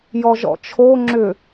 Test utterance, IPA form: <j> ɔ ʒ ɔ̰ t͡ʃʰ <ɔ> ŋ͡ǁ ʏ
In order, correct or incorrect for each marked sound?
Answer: correct, incorrect: o

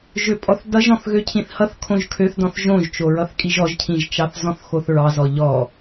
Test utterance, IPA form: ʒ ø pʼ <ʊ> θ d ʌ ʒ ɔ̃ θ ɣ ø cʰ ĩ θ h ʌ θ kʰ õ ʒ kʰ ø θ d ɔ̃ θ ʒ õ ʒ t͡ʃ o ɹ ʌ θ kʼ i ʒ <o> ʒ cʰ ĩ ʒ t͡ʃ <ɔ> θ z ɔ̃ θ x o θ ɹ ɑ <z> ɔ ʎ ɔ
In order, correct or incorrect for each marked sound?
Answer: incorrect: ɔ, incorrect: ɔ, incorrect: ɑ, correct

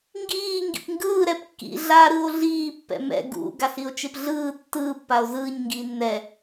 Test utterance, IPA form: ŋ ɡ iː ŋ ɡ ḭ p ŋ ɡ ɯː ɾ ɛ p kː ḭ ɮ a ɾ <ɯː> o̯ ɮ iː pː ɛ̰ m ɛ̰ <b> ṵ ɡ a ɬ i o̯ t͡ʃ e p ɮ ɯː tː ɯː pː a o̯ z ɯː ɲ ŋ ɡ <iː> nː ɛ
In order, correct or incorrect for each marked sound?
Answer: incorrect: ɯ, incorrect: ɡ, correct

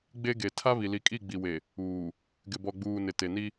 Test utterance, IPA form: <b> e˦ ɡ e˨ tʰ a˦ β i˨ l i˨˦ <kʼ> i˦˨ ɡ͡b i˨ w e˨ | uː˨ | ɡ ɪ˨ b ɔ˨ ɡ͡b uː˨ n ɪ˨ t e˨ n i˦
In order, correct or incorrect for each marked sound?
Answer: incorrect: ɡ͡b, correct

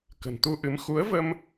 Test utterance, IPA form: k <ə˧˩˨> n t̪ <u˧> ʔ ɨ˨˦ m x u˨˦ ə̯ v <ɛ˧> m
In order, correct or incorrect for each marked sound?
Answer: incorrect: ə̤˨˩, correct, incorrect: ə˧

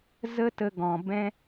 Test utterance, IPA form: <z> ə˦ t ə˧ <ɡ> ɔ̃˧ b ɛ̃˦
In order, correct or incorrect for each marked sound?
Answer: correct, correct

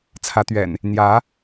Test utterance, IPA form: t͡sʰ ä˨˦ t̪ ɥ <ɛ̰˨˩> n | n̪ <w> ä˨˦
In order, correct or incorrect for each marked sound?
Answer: correct, incorrect: j

